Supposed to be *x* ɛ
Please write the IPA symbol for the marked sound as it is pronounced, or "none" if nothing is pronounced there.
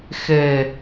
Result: x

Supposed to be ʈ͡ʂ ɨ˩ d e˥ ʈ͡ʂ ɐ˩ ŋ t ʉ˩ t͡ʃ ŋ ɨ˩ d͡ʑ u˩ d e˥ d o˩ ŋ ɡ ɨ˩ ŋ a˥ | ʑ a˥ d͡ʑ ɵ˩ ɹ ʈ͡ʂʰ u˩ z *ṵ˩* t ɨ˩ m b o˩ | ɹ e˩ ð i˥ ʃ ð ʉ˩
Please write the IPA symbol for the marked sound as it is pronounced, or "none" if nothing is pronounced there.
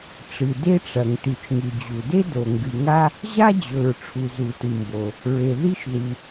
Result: u˩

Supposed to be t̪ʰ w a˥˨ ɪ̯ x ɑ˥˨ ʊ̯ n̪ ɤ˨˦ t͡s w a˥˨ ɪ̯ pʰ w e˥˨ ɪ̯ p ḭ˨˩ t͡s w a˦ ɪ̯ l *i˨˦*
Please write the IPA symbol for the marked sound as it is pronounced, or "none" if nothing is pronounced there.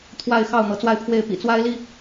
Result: i˥˨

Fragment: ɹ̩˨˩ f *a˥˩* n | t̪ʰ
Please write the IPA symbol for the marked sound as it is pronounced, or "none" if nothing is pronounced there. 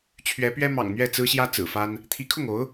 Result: a˥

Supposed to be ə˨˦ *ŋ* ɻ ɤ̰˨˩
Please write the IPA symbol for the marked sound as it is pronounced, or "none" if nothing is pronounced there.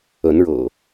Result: n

